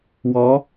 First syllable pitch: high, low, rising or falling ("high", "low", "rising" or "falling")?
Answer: rising